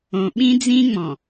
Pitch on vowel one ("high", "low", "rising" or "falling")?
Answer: low